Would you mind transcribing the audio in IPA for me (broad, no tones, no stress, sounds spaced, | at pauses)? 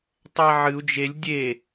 tˤ æ ʕ ɨ u̯ d͡ʒ e lʲ dʲ e